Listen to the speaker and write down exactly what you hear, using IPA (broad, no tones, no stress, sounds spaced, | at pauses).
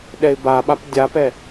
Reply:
ɗ ɛ ɪ̯ b a ɓ a p dʲ a p ɛ